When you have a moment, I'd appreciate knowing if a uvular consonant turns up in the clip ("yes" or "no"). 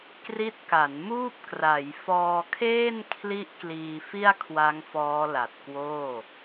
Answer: no